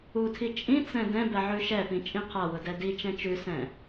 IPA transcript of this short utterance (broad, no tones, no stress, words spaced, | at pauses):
utʰi t͡ʃʼĩt͡sɛ̃ dɛ̃bɛ ʕʉʃɛpĩ t͡ʃʼĩqʰawʊ dɛdit͡ʃɛ̃ t͡ʃʉsɛ̃